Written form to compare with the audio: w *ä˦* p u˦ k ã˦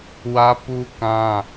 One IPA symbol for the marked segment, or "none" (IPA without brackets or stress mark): ä˦